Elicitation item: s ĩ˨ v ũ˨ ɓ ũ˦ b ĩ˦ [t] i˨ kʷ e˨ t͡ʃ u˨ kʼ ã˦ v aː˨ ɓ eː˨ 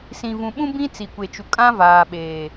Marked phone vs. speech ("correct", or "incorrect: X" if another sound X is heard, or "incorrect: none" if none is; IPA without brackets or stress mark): incorrect: t͡s